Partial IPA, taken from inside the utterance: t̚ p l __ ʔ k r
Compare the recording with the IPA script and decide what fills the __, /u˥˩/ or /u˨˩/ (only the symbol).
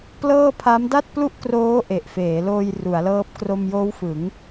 u˥˩